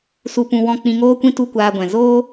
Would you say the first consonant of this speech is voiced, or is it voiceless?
voiceless